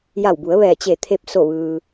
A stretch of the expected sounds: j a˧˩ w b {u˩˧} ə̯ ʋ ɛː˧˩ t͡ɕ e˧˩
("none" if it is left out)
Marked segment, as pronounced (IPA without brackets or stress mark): u˩˧